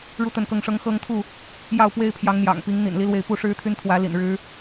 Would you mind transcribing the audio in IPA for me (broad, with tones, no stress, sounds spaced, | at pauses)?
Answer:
ɻ u˥˨ t̪ ə˥˨ n k ɤ˥˨ ŋ ʂ ɤ˦ ŋ x ɤ˦ ŋ t̪ʰ u˥˨ | j ɑ˥˨ ʊ̯ p w e˦ ɪ̯ pʰ j ɑ˨˦ ŋ n̪ j ɑ̰˨˩ ŋ p i˨˦ ŋ n̪ ḭ˨˩ n l i˦ l w e˥˨ ɪ̯ p u˥˨ ʂ ɻ̩˦ t̪ʰ y˦ n t̪ʰ w ä˨˦ l ḭ˨˩ n ɻ ɻ̩˨˦